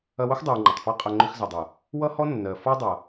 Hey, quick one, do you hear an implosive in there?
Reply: no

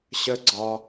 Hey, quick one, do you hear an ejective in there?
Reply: no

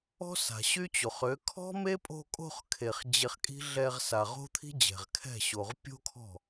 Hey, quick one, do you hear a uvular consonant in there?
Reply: yes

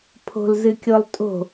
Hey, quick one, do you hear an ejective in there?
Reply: yes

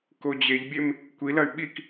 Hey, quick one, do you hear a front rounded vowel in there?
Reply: yes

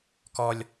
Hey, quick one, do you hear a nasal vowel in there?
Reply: no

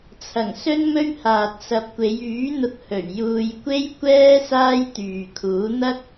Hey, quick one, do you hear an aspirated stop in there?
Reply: yes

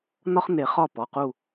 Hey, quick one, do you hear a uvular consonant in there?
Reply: yes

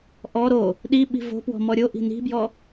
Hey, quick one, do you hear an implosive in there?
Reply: yes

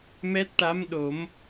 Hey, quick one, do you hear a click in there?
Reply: no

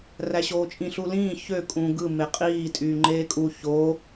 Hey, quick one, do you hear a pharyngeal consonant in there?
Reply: no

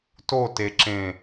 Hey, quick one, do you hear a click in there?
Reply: yes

